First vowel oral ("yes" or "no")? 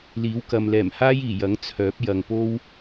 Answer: yes